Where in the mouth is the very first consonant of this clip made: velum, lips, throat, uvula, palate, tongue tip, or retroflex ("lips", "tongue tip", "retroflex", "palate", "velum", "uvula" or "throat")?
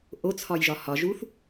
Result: throat